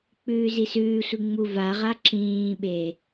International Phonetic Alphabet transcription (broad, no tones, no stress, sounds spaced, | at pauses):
k͡p ʉː z i s ʉː sʷ i ŋ͡m u v a ʁ a ǁ ĩː ɓ e